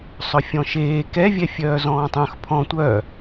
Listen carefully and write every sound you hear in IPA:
sˤ œ fʲ ɔ̃ ʃ eː k ɛ vʲ ɛ fʲ œː z ɔ̃ː tˤ œ̃ x pʰ ɔ̃ tʷ œ

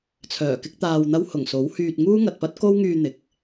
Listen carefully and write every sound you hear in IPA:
t͡sʰ œː˨˩ k ɪ˥ k̚ t̪ aː˧ w n̪ ɐ˥ w h ʊ˨˩ ŋ s o˨˥ w h yː˧ t̚ ŋ uː˥ ŋ ɐ˨ t̚ p ɐ˥ t̚ k o˥ w ŋ yː˧ n̪ ɪ˨ k̚

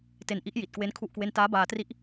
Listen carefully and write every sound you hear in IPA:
t e˧ n ʔ i˦˥ ʔ j i˨˩ t̚ k w e˦˥ n kʰ u˥˩ ʔ k w e˥˩ n t aː˦˥ b aː˧ t r i˦˥ ʔ

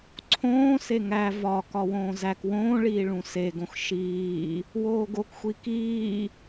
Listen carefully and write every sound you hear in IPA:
ǀʰ õː s e ŋ æ v ɒ k ɒ w õː z æ k w õː ɭ iː ɭ ũ s e ɡ õ x ʃ iː | w oː ɡ o k xʷ i k iː

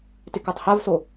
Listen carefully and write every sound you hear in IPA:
t ɪ k ɔ tˤ h a v s o

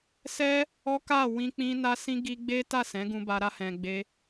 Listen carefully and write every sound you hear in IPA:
s ɛ˦ | ɔ˦ k a˦˨ w ĩ˧ k͡p ĩ˧ n a˦ s ĩ˦ ɡ i˧ ɡ͡b e˦ t a˦˨ s ɛ̃˨˦ ɡ ũ˧ b a˧ ɾ a˧ h ɛ̃˨ ɡ͡b e˧

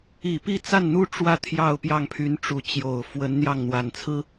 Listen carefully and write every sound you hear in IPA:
i˨˩ p i˥˧ t͡s a˥˩ n n̪ u˥ ʈ͡ʂ w ä˥˧ t̪ʰ j ɑ˥˧ ʊ̯ p j ɑ˥˩ ŋ pʰ y˧˥ n ʈ͡ʂ u˧˥ t͡ɕ j o˨˩ ʊ̯ f w ə˧˥ n n̪ j ɑ˥˩ ŋ n̪ w a˨˩ n t͡sʰ ɹ̩˥

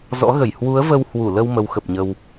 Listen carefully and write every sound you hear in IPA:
z ɔ̰˧˥ ɣ ə˧˩ j h w u˨˦ ə̯ v ə˧ w h w u˧˩ l ə˧ w m ə˨˦ w x ə˨˩ p̚ ɲ ə˧ w

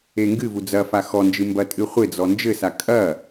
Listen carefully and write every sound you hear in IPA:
e ŋ ɡ ɨ v u d͡z ɐ f a x ɔ n d͡ʒ ɨ m b ɐ tʼ ɨ χʷ e d͡z ɔ n d͡ʒ ɘ s a kʼ ɐ

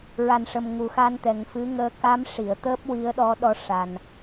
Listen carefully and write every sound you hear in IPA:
ɹ a˨˩ n ʂ ə˨˩ m ŋ u˨˩ x a˧ n t̪ ɛ˨˩ ŋ f ɨ˧˥ ŋ əː˧˥ k a˧˥ m ʂ i˨˩˨ ə̯ t̪ əː˦˥ p̚ w i˧˥ ə̯ ɗ ɔ˧˥ ɗ ɔ˧˥ ʂ a˨˩ n

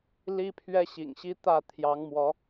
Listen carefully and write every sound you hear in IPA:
l i˦ pʰ ɥ ɛ˦ ɕ ḭ˨˩ ŋ ɕ i˦ t̪ ä˥˨ t̪ʰ j ɑ˨˦ ŋ m w ɔ˨˦

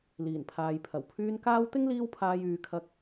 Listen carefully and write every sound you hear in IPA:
l iː˨˩ n pʰ aː˨ j pʰ ɐ˨˩ w pʰ yː˧ n k aː˥ w t̪ ɪ˥ ŋ l iː˧ w pʰ aː˨ j yː˨ kʰ ɐ˧ k̚

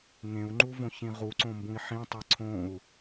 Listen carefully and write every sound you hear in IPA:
ŋ ẽ u̯ ŋ͡ǃ u v õ ç ĩ ʁ u ǀ õ m b ũ i̯ ħ ĩ tˤ e ǀʰ õ u̯

